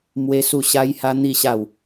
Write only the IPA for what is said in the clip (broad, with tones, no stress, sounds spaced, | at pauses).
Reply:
m w e˦ s u˥˧ ɕ a˦ j h a˦ n̪ i˥˧ ɕ a˥˧ w